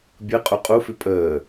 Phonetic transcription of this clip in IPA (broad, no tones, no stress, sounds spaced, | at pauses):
bʲ ɯ qʼ u qʼ u f ʉ pʼ əː